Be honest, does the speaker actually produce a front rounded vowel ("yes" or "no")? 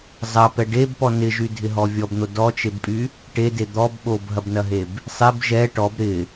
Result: yes